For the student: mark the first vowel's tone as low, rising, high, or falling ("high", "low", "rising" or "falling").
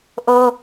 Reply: high